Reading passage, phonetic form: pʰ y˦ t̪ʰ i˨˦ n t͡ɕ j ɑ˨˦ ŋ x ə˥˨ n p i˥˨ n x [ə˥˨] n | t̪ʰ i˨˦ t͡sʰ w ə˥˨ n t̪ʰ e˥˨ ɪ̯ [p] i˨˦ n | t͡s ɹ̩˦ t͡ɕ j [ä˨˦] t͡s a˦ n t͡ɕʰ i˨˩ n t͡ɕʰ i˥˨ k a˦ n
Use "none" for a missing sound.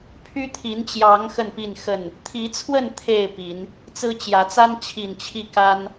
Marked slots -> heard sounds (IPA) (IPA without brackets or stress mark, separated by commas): ə˥˨, p, ä˨˦